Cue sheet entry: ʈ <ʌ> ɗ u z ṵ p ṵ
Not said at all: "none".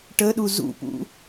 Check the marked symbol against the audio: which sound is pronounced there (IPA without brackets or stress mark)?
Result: ə